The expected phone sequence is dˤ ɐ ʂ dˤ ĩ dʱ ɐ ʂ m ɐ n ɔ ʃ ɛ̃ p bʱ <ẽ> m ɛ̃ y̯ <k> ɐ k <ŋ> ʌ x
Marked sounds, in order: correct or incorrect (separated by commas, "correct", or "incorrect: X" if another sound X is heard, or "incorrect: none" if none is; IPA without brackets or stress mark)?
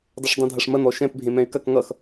correct, correct, correct